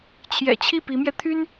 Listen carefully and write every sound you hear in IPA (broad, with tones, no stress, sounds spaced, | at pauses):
t͡ɕʰ j ɛ̰˨˩ t͡ɕʰ i˥˩ p i˧˥ m j ɛ˧ t̪ʰ y˥ n